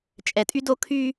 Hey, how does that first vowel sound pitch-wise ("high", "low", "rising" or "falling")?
low